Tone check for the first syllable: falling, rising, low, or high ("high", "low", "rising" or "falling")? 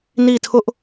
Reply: falling